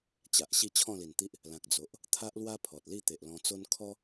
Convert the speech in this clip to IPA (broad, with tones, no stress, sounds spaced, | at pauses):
t͡ɕ a˨ ʔ ɕ i˥˧ t͡ɕʰ ɔ̃˥˧ l i˨˩ n t̪ i˦ ʔ | l ã˨ k̚ d͡z o˨ ʔ | t̪ʰ a˦ ʔ l w a˦ pʰ ɔ˨ t̚ l i˥˧ t̪ e˨ ʔ l ɔ̃˧ t͡s o˦ n kʰ ɔ˦